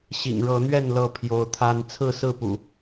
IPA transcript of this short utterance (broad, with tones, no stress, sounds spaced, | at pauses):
ɕ ḭ˨˩ ŋ ɻ ɤ˨˦ n̪ ɥ ɛ˥˨ n l ɤ˥˨ pʰ j o˨˦ ʊ̯ t̪ʰ a˦ n t͡sʰ ɹ̩˥˨ s ɹ̩˥˨ p ṵ˨˩